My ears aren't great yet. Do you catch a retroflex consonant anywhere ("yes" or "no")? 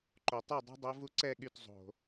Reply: no